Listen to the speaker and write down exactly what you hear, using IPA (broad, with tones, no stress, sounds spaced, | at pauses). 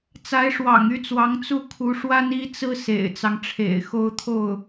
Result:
t͡s a˧˥ ɪ̯ ʂ w ɑ̰˨˩ ŋ y˥˩ t͡s w ɑ˧˥ ŋ t͡s u˥˩ kʰ u˧˥ ʂ w a˥ n i˥ t͡s ɹ̩˥ s ḛ˨˩ ɪ̯ t͡s ɑ˦ ŋ ʈ͡ʂʰ ḛ˨˩ ɪ̯ x o˥ ʊ̯ t̪ʰ o˥˩ ʊ̯